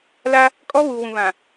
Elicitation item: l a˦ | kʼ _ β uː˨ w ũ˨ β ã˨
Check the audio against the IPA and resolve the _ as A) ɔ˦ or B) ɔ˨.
A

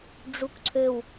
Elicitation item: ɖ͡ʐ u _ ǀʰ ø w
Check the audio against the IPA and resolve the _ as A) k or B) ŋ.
A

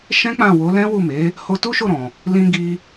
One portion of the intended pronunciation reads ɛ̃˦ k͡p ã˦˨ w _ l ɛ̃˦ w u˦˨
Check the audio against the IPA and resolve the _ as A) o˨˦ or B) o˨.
A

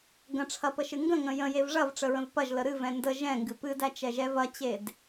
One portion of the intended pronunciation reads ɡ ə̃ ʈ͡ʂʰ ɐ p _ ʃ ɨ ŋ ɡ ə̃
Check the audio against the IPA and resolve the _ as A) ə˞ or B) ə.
B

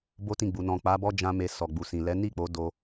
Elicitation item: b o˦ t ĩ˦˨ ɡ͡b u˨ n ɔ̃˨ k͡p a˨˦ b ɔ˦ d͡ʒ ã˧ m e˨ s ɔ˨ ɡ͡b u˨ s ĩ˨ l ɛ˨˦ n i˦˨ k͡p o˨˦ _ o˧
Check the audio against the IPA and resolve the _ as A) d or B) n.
A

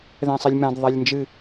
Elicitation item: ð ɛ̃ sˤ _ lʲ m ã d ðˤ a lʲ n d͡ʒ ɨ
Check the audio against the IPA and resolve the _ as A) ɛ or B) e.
A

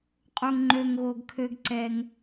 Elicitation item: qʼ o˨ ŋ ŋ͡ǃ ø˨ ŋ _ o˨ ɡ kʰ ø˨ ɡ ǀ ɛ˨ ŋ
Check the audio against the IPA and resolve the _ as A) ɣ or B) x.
A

